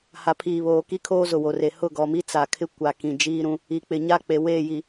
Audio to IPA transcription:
ha˨pʰiː˨βoː˨ ki˦kʰoː˦ zʊ˨wo˨re˨ hʊ˦˨ɡɔ˨mi˦ t͡sa˨kʰɪ˦ kʷa˨ kĩ˨d͡ʒiː˦ɾũ˦ | i˨k͡pɪ˨ɲa˦ k͡pe˨ weː˦˨ji˨

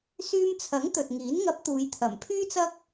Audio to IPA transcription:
syː˧mt͡sʰɐ˨˥ŋ t̪ɵ˨t̚ŋiː˨˥n ŋɐ˨˥p̚ t̪uː˨˧jt̪ʰɐ˨˩mpʰyː˥t͡sɐ˥k̚

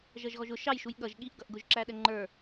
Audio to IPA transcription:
ʒʌʒɣɔʒʊ ʃɑjʃuj ɠʌʒ ɠiʔ ɡʌʔɡʊʒǁæ ɗɛŋ͡ǃə˞

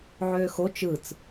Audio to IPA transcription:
ʕøːxo t͡ʃɯt͡s

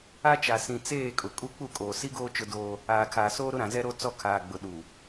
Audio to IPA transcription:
a˦t͡ʃa˨ sĩ˨t͡seː˦˨kʼʊ˨ kʼu˦k͡pu˦˨kʼoː˨ si˦ɡoː˦ t͡ʃʊ˦doː˦ | aː˨kʰaː˨soː˦ ɾʊ˦ɾã˨zɛ˦ɾo˦ t͡sɔ˦kʰaː˨ɡ͡bʊ˨ ɗu˨

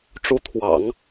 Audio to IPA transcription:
ʈ͡ʂu˧˥ t̪ʰwɑ̰˨˩˦ŋ

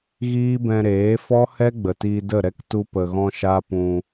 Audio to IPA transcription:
ɣiː˦bɛ̃˧ɾeː˨˦ fɔ˦hɛ˦ ɡ͡bə˨tiː˧də˦˨ɾɛ˦k tu˧pə˨ɣɔ̃˧ ʃa˦pũ˧

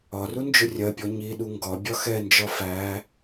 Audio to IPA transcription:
ɒru nd͡ʒʊrʲɜpʲɔ ɲiɗu ŋɡɒ bʲɒxɛnd͡ʒɒ fæ

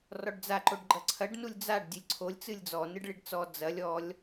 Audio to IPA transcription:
rɔɖd͡za ǃoɖɡ͡ǃɐǀʰɐɖ nulʲd͡zaɖ dʲɨlʲǀʰolʲ t͡sɨlʲd͡zɔ nɨɖɭiɖt͡sɔ d͡zɐlʲ ɔlʲ

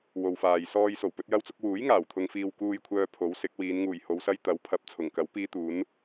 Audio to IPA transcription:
wo˨wfaː˨j sɔː˧j so˨˩wpɵ˨˥t̚jɐ˥wt͡sʊ˥k̚ wuː˨˥jŋaː˨˩wt̪ʰʊ˨ŋfiː˨w kuː˥jkʷʰœː˥ pʰo˨˥wsɪ˨˥k̚ wiː˨˧nŋuː˨˩jho˨˧wsɐ˥j t̪ɐ˨˥wpʰɐ˨˥p̚ t͡sʰʊ˨˩ŋkɐ˨˥w piː˥t̪uː˨˥n

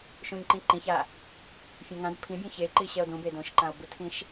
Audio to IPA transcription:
ʃũɲǃĩǃĩça | fʲõŋãd pʰĩbʲũ çeǃiɕɛo̯ dũbe dõʃǃão̯bɯtʰĩʃ

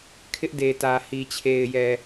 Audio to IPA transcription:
kʰɪ˦ʔde˨tä˨ hi˨t͡ɕʰe˨ɪ̯jɛ˨

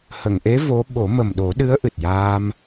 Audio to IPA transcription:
hə˨˩˨ŋʔe˧˥ vo˧˥ ɓo˨˩˦mə˨˩mɗo˨˩˦ɗɨ˧˥ə̯ ʔɨ˨˩t̚jaː˧m

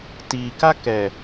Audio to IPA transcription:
tika kɛ

